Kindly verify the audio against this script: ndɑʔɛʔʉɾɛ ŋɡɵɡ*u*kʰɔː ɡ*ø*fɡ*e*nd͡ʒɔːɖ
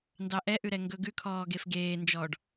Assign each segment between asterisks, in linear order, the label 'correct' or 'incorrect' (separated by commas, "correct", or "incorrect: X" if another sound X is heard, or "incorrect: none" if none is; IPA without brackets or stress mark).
incorrect: ʉ, incorrect: e, incorrect: eː